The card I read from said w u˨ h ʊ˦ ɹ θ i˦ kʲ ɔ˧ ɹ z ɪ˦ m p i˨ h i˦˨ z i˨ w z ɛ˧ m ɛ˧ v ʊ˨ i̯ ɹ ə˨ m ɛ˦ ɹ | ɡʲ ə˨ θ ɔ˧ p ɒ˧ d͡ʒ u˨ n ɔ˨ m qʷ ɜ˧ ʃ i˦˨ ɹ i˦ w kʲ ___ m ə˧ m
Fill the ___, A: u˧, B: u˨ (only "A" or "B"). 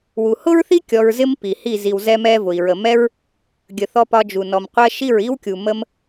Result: B